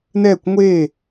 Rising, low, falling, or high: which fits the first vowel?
falling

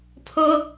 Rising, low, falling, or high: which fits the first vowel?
high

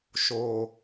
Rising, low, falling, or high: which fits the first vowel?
low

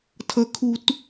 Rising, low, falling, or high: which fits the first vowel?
rising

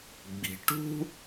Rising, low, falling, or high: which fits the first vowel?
low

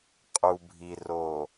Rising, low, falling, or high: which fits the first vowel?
low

